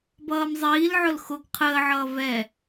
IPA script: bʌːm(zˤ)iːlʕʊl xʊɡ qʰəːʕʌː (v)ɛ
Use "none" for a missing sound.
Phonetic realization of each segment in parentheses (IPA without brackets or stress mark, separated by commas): zˤ, v